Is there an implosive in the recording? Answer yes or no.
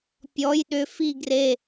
yes